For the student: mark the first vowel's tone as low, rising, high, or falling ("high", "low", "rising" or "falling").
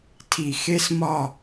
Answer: low